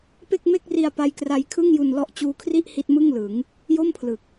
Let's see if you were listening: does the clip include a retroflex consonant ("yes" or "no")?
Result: no